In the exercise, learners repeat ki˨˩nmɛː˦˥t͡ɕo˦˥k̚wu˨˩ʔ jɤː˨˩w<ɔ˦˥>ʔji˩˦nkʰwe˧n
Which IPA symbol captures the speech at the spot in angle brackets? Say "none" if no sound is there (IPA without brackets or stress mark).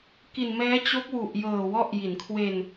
ɔ˦˥